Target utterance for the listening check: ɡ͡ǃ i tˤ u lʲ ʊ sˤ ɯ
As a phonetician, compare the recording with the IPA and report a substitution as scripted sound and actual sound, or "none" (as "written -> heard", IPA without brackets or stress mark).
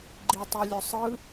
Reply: none